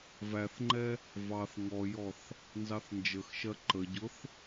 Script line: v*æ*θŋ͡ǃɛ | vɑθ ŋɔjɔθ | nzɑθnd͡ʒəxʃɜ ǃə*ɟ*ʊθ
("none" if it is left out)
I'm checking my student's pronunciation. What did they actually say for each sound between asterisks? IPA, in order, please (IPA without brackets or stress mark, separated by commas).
æ, ɟ